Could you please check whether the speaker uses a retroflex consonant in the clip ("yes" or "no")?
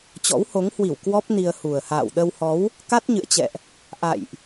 no